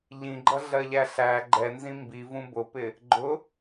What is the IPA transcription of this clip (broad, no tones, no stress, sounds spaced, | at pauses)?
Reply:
ʎ ĩ ɡ͡ǃ ʌ ɮ ɜ ʎ æ ɬ æ ɡ͡ǃ ɛ n z ĩ m b i v ũ b ʊ p ɪ | ɡ͡ǃ ʊ